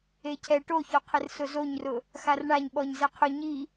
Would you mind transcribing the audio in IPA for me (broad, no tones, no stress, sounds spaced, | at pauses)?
e cʰ ɛ ʈ o ç ɔ qʰ ɪ r s ʊ z o ɲ r ʊ | x a r ɳ a ɲ ɓ ɔ ɲ z e qʰ ʊ ɲ i